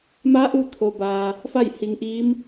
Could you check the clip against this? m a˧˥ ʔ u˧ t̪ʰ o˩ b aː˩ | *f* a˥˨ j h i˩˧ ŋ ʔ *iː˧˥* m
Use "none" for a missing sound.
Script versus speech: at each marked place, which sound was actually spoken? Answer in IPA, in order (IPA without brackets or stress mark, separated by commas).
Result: f, iː˧˥